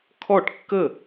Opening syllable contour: falling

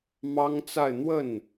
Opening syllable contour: high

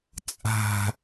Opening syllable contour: high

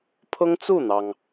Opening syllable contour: high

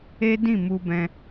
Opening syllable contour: high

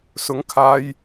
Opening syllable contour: rising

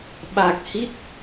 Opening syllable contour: low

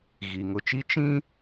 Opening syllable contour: low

